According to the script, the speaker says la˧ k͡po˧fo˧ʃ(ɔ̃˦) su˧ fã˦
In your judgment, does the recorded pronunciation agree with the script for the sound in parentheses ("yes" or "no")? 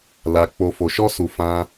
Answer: no